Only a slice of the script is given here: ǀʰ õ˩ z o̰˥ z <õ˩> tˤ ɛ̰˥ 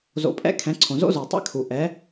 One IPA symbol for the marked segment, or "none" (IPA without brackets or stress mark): o˩